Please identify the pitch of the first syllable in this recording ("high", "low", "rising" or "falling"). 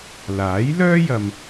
rising